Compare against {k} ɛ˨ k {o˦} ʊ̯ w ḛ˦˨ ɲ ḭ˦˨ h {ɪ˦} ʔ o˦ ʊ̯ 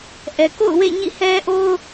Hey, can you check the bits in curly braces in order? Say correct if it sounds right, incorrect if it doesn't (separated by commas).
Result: incorrect, incorrect, incorrect